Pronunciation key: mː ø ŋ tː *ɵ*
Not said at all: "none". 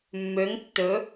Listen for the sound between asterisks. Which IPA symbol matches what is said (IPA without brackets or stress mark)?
ɵ